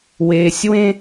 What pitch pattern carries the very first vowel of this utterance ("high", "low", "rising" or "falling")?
low